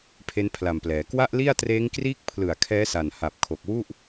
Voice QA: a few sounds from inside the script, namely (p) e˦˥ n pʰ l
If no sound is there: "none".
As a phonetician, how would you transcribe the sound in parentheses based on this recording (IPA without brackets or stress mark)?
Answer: pʰ